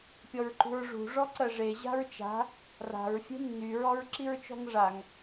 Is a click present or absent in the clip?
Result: present